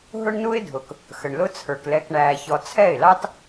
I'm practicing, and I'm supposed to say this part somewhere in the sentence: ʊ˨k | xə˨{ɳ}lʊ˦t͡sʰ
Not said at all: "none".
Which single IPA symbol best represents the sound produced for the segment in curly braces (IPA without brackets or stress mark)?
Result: ɳ